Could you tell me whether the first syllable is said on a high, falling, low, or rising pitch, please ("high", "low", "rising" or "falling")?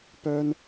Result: high